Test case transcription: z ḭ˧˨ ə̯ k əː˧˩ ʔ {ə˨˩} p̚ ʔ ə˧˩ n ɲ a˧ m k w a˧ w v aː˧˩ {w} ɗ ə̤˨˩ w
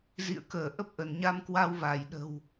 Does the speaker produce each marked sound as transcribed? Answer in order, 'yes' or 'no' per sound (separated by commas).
no, no